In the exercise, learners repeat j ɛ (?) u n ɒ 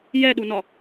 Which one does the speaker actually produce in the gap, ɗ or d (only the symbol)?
ɗ